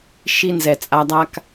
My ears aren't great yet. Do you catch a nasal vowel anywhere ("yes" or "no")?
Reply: no